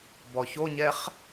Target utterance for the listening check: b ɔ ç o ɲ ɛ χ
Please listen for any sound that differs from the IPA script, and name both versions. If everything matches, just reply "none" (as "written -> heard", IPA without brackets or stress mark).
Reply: none